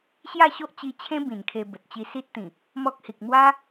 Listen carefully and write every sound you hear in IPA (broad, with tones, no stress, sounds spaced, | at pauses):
ɕ j a˥˧ ɕ o˦ ʔ t͡ɕ i˧ t͡ɕʰ ẽ˦ b ĩ˨˩ n kʰ e˧ b ə˨ t̚ t͡ɕ i˧ s i˦ t̚ t̪ ĩ˨˩ | m ɔ˦ k̚ h i˨ k̚ m w a˦